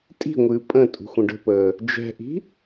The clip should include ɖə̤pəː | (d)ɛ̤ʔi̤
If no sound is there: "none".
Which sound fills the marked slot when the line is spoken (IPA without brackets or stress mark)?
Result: d͡ʒ